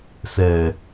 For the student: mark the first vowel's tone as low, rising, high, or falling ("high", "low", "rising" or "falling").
low